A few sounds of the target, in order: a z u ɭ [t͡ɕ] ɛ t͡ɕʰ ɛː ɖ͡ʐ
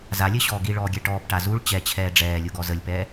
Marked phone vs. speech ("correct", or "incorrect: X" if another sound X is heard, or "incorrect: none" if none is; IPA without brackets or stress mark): correct